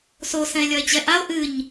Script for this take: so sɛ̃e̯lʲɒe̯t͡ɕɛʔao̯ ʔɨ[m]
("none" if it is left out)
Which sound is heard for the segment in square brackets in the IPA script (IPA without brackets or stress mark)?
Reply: ɲ